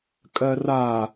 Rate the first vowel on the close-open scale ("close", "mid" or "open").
mid